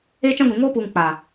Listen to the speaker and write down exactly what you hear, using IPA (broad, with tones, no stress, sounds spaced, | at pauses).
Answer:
eː˦ t͡ʃ ã˦ ɡʷ ĩ˨ ŋ oː˦ p uː˨ ŋ k͡p a˨